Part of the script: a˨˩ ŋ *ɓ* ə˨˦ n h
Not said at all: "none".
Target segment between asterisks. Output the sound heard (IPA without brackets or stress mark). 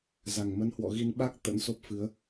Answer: m